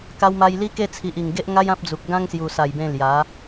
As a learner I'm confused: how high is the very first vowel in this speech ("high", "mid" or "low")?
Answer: low